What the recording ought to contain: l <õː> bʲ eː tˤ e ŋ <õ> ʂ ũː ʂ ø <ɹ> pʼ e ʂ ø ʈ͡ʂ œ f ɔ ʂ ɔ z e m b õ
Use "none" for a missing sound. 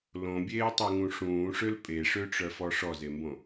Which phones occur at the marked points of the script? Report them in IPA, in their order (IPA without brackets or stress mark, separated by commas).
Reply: õ, ũ, l